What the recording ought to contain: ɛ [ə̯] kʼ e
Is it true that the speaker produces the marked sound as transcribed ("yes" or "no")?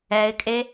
no